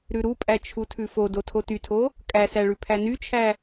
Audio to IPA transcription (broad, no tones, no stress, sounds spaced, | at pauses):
ɾ ʉ ɾ u pʼ æ t͡ʃʰ u tʰ ʉ f o d o tʰ o t y tʰ o | kʼ æ s æ ɭ ʉ pʰ æ n y t͡ʃʰ æ